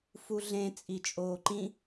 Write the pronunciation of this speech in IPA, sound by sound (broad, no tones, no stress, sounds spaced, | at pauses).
f u ɮ ẽ t͡sʼ i t͡ʃʼ oː ǃ ĩ